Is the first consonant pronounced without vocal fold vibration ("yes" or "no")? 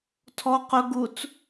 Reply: yes